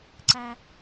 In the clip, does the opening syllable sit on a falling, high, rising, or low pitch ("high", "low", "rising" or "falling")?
high